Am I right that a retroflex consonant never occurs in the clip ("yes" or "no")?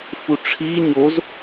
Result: no